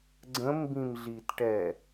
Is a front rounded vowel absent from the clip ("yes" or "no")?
yes